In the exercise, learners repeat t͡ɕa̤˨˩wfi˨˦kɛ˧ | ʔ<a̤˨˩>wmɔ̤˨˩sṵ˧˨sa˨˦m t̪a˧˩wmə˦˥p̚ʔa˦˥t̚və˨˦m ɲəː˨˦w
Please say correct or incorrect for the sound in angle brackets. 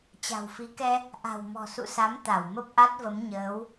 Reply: correct